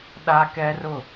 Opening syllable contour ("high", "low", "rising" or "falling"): high